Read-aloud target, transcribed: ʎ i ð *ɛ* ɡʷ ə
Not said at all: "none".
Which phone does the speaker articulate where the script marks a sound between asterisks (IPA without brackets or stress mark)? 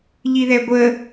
ɛ